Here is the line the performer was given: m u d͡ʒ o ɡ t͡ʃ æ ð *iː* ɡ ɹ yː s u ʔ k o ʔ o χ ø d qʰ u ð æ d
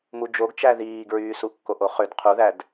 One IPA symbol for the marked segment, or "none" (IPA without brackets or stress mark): iː